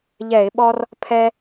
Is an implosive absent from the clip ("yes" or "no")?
no